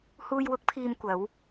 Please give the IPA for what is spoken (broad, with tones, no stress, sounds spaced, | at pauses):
h uː˧ j w ʊ˨˥ k̚ pʰ iː˧ m kʷ ɐ˨˧ w